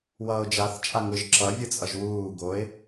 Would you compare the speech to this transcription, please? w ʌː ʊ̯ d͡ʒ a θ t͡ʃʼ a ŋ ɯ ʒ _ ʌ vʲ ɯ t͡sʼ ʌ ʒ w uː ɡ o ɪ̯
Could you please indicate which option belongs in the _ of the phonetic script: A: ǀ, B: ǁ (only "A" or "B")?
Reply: B